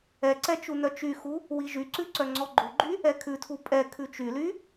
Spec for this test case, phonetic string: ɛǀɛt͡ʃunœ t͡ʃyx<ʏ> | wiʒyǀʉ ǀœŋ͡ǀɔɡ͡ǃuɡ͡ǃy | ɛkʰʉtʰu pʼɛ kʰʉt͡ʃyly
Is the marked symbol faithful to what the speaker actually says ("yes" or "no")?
no